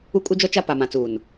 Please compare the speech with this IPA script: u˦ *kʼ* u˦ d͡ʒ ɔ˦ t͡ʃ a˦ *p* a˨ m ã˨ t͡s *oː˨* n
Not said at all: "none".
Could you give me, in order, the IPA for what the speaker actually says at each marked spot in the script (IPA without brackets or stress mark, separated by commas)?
kʼ, p, uː˨